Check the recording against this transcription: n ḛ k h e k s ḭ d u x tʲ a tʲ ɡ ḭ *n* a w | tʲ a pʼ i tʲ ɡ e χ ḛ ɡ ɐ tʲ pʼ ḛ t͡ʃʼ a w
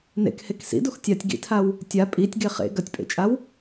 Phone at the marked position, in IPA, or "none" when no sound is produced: tʰ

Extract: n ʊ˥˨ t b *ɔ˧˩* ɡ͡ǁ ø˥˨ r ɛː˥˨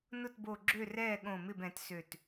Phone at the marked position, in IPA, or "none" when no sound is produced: o˧˩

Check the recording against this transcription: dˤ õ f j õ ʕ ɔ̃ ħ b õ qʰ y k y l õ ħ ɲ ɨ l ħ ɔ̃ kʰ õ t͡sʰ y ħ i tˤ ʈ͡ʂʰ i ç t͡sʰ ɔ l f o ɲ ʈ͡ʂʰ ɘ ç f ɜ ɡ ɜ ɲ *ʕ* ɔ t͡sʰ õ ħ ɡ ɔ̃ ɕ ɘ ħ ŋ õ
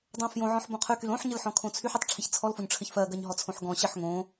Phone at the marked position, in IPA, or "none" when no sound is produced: ɦ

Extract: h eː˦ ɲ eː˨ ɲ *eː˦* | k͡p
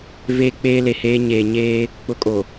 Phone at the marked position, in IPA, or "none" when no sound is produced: eː˦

